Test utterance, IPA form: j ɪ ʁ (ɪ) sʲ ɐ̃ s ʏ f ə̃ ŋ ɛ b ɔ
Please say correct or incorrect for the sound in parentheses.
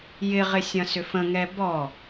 correct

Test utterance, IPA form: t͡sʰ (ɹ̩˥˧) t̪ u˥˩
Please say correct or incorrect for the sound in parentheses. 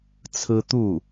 incorrect: ɹ̩˥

